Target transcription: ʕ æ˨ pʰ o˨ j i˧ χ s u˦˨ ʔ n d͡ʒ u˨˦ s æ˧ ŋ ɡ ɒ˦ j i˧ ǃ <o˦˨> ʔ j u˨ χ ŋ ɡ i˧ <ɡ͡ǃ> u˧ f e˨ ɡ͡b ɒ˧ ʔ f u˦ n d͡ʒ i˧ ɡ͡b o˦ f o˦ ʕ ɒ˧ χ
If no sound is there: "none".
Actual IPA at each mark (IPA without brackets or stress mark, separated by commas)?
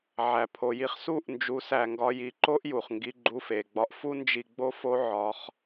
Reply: o˦, ɡ͡ǃ